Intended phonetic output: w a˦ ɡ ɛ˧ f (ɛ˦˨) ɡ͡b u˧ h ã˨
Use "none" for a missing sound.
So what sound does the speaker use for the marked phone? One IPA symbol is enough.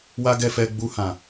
ɛ˧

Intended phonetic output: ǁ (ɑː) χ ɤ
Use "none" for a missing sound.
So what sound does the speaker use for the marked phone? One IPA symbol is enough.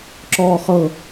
ɔː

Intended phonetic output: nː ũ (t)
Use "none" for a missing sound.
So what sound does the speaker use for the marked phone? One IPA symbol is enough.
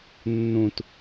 t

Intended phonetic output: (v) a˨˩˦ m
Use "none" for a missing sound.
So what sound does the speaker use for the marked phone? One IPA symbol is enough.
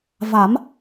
v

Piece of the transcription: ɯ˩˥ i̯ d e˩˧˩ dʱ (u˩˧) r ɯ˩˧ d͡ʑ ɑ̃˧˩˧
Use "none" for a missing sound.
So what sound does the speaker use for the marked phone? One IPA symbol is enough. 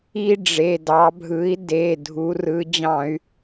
u˩˧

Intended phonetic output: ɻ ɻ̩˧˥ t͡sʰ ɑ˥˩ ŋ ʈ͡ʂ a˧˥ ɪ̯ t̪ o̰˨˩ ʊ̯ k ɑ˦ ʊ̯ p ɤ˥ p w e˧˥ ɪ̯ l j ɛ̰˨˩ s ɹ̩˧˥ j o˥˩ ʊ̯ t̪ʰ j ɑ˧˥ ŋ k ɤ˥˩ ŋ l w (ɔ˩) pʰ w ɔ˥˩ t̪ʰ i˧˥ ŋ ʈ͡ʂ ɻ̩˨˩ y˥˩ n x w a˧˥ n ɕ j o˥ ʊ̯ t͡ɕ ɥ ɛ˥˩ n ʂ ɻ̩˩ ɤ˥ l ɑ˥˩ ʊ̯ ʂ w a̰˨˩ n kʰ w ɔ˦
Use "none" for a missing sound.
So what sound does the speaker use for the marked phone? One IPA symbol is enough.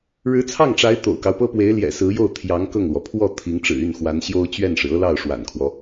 ɔ˩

